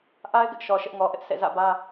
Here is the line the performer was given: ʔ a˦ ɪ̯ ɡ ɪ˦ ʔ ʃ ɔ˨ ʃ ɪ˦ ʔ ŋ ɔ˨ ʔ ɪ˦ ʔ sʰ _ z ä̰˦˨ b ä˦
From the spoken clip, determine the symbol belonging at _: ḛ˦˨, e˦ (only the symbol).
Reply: ḛ˦˨